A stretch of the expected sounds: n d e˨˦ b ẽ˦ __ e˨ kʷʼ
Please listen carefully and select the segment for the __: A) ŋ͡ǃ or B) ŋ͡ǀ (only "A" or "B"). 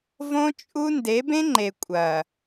A